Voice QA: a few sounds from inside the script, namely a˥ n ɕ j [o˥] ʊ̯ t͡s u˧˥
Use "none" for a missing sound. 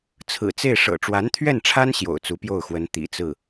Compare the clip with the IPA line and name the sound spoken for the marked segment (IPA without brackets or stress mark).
o̰˨˩